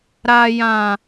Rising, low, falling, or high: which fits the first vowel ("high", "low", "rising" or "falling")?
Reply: low